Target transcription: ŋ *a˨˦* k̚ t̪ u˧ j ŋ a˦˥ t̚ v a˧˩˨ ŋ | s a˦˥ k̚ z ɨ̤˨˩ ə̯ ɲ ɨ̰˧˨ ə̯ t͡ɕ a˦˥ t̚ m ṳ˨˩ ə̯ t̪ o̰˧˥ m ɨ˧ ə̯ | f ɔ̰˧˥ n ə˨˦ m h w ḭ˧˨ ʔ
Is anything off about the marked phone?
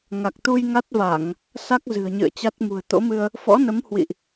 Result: yes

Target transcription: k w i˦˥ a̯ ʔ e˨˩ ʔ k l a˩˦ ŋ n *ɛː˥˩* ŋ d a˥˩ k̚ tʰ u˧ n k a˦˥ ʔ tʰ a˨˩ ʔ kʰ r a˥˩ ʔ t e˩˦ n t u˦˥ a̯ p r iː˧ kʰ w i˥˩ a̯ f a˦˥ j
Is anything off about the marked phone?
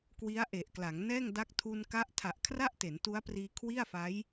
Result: no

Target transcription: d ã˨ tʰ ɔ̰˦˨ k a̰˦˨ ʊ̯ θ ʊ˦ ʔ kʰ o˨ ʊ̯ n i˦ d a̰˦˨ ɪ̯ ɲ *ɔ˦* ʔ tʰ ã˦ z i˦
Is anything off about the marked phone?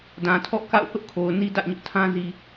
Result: yes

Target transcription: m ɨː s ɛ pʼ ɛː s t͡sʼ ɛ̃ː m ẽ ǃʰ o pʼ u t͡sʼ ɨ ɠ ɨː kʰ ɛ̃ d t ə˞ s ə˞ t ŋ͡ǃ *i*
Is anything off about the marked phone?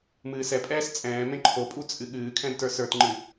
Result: yes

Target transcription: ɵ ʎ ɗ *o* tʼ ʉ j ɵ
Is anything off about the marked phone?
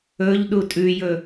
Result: yes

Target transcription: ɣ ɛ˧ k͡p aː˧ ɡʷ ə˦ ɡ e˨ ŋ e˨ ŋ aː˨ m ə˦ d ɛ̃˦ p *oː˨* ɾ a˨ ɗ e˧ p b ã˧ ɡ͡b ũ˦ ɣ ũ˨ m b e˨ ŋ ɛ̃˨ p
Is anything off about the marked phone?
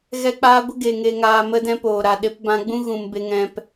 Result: no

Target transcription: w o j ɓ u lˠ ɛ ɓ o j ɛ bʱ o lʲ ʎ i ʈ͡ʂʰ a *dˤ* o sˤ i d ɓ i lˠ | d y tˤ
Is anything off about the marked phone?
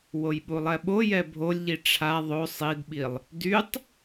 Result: yes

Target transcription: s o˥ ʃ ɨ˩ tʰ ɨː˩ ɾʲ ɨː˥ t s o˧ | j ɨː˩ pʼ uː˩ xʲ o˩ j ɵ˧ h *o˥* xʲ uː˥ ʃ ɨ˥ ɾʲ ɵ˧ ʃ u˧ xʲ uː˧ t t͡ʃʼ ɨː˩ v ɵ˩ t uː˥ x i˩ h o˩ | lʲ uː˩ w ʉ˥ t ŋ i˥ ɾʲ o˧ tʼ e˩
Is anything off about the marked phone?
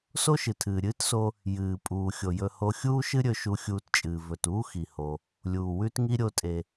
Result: yes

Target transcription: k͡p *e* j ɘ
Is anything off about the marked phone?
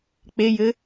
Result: no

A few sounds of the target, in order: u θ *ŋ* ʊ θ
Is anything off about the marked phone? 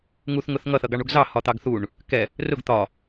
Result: no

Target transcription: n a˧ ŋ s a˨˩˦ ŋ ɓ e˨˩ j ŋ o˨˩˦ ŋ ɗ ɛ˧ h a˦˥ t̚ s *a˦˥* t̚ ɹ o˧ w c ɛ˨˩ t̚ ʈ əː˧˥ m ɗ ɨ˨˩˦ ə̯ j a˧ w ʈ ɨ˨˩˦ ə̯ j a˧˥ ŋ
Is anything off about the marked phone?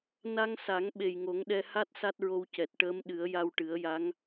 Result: no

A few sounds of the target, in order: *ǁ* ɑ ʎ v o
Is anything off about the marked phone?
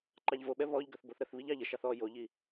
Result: yes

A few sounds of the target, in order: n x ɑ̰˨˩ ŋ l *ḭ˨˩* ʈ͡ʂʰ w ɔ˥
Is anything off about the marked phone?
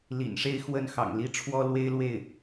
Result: yes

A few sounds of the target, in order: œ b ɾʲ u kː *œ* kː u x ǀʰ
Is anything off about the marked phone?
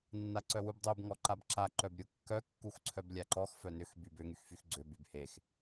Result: no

